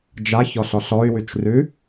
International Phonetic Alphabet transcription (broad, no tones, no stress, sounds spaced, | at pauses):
d͡ʒ a ç ɔ ɬ ɔ ɬ ɔ y̯ w ʉ t͡ʃ r ʉ